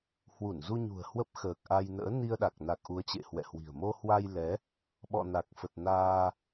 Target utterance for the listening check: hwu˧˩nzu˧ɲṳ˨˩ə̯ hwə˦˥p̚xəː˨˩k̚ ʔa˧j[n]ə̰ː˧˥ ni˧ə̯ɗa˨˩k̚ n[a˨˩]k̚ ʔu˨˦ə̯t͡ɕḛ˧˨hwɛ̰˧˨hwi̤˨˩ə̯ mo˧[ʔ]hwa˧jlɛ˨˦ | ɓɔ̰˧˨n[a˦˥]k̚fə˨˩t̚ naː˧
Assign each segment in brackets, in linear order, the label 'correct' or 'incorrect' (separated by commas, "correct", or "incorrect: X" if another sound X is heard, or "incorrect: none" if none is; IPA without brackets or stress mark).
correct, correct, incorrect: none, incorrect: a˨˩